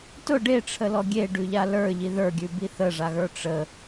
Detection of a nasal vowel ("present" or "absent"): absent